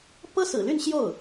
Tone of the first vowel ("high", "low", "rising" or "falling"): high